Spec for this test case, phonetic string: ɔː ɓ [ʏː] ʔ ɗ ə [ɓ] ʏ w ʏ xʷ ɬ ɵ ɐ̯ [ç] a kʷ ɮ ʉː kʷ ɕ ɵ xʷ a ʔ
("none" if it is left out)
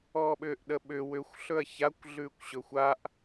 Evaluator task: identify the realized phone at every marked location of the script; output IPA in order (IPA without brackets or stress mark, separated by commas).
ʏː, ɓ, ç